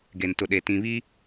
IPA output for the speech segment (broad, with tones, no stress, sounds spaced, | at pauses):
ɡ e˨ n t ʊ˨ ɗ e˨ t ĩ˨ β i˦